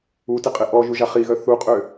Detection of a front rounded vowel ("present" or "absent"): present